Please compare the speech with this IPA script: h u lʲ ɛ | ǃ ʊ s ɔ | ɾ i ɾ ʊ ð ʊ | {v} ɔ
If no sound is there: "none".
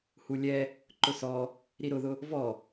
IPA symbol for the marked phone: v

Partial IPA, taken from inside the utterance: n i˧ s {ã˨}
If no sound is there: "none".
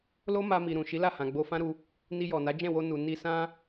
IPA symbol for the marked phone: ã˦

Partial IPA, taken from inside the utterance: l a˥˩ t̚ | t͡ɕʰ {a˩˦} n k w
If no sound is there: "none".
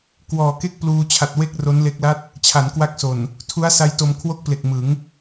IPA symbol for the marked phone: a˩˦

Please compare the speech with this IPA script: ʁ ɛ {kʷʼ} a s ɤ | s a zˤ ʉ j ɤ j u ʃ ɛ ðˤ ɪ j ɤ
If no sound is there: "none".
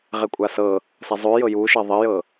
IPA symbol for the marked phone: kʷʼ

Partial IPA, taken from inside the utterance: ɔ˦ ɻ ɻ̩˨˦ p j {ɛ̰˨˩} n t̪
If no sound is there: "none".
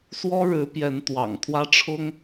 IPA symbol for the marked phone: ɛ˨˦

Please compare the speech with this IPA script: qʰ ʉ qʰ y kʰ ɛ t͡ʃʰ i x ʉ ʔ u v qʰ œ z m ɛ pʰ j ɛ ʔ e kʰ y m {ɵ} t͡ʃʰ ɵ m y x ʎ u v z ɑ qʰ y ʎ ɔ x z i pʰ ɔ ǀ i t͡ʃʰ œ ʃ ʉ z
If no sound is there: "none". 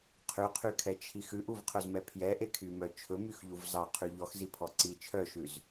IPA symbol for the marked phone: œ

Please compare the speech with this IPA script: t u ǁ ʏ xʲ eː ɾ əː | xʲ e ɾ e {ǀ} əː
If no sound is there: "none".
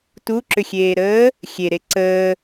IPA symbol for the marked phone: ǀ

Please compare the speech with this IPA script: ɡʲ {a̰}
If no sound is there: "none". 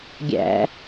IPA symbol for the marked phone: æ̰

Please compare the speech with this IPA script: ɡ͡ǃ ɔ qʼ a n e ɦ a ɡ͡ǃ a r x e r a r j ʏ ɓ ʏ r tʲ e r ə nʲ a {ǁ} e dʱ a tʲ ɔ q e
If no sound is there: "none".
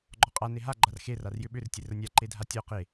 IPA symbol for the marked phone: ǃ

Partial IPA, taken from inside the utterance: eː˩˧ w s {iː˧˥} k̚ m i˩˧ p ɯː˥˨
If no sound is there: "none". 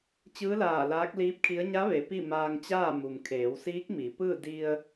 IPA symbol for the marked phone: iː˧˥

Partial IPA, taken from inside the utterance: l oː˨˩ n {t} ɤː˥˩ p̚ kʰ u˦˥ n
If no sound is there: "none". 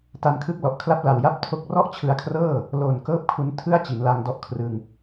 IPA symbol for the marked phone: k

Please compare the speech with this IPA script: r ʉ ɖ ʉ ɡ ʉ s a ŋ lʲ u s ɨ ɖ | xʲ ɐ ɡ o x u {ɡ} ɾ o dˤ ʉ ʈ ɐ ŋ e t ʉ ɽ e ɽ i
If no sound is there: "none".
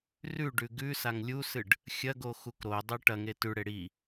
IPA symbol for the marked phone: k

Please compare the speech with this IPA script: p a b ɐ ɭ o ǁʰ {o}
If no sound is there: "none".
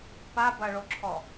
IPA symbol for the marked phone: ɔ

